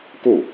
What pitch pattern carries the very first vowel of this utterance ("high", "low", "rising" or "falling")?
falling